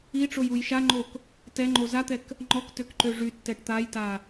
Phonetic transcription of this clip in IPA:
i ʈ͡ʂ o j u j ʃ a ŋ͡ǃ o k | t ɛ ŋ͡ǃ o z a t̪ ɛ k | ŋ͡ǃ ɔ k t ø k ǃ ø ʐ y tː ɛ ʈ t̪ a j t a

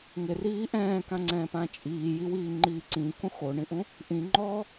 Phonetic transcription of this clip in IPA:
ŋ ɪ r iː ʔ ɛ̃ː k ã ŋ͡ǀ ɛ̃ː p ã t͡ʃʼ iː j i w iː ŋ͡ǃ iː ǀ ĩ k ũ x o ɳ ĩ ʔ ũ | ʔ ĩ ŋ͡ǃ ɔː

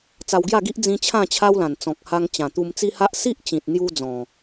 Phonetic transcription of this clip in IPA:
t͡s a˧ w ɡ j a˥˧ ɡ i˦ ʔ d͡z ĩ˦ t͡ɕʰ ã˥˧ t͡ɕʰ a˦ w l ã˨˩ n t͡s ɔ̃˨ k̚ h a˧ ŋ t͡ɕ ã˨˩ t̪ u˧ m t͡s i˦ h a˦ ʔ s i˦ ʔ t͡ɕ ĩ˨ t̚ n̪ j u˧ d͡z ɔ̃˨˩

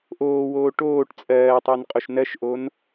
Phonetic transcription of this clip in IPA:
ʔ oː w oː ʈ oː ʈ t͡sʼ ɜː tˤ ɜ n qʼ o ʃ n ɜ ʃ ʔ o n

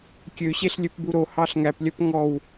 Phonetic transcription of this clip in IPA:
kʲ ø ɕ e ɬ lʲ ø p b u ɾ o h ɑ ɬ ŋ æ p lʲ œ p ŋ ɔ w

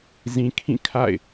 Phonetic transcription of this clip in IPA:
z ĩ˨ kʰ ĩ˦˨ kʰ a̰˦˨ ɪ̯

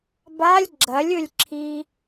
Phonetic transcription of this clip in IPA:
b a lʲ ɡ͡ǁ ɐ lʲ ɵ lʲ ǁʰ i

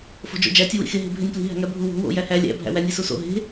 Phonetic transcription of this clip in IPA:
f o̤ d͡ʒ o̰ d͡ʒ æ tʲ u w ḭ x e ɦ e̤ bʱ e nʲ p l i̤ ɦ æ̤ ŋ æ bʱ u w o̤ w o̰ j æ h æ lʲ æ̰ bʱ æ̰ w æ nʲ e s u s o̰ ɦ e̤

